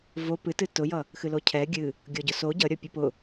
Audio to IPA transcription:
v o p ɨ t ɨ t ʊ j ʌ | x ɨ l o cʰ ɛ ɡʲ ɨ | ɡʲ ɔ ɟ ʊ s o ɟ ʌ ɾʲ ɔ pʲ ɨ p ʊ

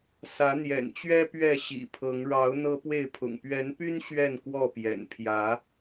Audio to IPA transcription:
s ä˨˦ n̪ j ɛ̰˨˩ n t͡ɕ ɥ ɛ˦ p ɥ ɛ˥˨ ɕ ḭ˨˩ pʰ ɤ˨˦ ŋ ɻ ɑ˨˦ ʊ̯ n̪ ɤ˦ p w e˥˨ ɪ̯ pʰ ʊ̰˨˩ ŋ p ɥ ɛ˨˦ n p y˦ n ɕ ɥ ɛ˥˨ n k w ɔ˥˨ p j ɛ̰˨˩ n pʰ j ä˨˦

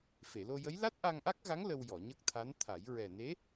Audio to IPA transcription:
f e˨˩˨ l o˧ j ə˧˥ j l a˦˥ t̚ ʔ a˧ ŋ ʔ a˦˥ k̚ ɣ a˧˥ ŋ l ə˧ w j ɔ˨˩˨ ɲ ə˦˥ k̚ t̪ʰ a˧˥ n t̪ʰ a˨˩˦ j ɹ ɛ˨˩ n e˧˥

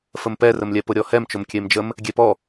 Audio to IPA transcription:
f ə m p ɛ r ə m lʲ ɛ p ʊ ɾʲ ɔ h ɛ m t͡ʃ ʊ m kʲ e m d͡ʒ ə m | ɡʲ e p ɔ

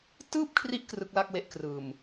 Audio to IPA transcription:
t ɯː˥˩ p̚ kʰ r i˦˥ ʔ k r ɯ˦˥ k̚ l a˥˩ k̚ w e˦˥ ʔ k r ɯː˨˩ m

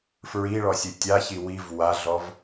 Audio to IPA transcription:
f ɹ i ɭ ɔ sʲ ɯ tʲ a ç i w i v w a ɮ ɔ v

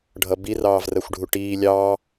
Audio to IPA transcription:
ɖʱ ʌ b i r ɑː v r ɜ xʷ ɖʱ u ʈ iː lʲ ɑː

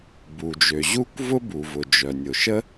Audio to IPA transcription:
b u˩ d͡ʒ ø˩ ʑ u˥ kʷ v ʊ˥ b u˩ v ʊ˩ d͡ʒ œ˩ nʲ ʊ˩ ʃ ə˥

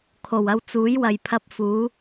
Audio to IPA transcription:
kʰ o˨˩ w ɐ˧ w t͡s uː˨˥ j w ɐ˨ j pʰ ɐ˧ p̚ f uː˨˥

